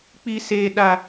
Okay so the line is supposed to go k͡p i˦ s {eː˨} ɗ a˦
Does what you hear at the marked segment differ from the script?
yes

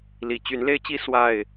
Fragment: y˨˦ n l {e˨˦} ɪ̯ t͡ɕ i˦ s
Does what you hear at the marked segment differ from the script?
yes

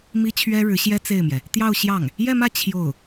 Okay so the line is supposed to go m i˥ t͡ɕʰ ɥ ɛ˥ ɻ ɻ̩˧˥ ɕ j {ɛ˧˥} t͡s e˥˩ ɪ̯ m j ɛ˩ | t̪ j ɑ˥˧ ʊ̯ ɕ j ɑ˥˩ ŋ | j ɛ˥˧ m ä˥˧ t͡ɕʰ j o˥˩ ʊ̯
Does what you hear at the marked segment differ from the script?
yes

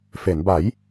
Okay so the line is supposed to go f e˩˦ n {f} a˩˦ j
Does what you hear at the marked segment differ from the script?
yes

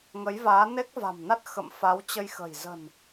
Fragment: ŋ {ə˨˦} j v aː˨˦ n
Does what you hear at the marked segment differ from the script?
no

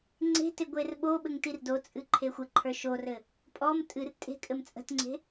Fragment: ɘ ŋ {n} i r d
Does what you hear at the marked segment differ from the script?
yes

